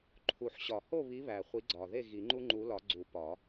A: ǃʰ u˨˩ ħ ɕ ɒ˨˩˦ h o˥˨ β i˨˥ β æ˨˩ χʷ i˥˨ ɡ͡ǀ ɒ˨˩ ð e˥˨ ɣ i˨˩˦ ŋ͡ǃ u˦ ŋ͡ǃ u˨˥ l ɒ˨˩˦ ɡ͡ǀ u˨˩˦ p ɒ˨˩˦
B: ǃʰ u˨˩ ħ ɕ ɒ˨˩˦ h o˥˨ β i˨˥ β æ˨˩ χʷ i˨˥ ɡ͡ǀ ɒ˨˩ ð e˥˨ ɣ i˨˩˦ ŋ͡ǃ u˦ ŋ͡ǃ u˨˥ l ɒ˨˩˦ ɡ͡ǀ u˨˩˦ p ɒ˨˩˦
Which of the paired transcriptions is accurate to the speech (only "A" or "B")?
B